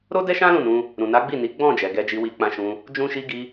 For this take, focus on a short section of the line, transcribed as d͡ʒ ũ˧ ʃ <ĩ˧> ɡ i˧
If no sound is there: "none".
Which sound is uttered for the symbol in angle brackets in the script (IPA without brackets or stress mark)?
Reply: i˧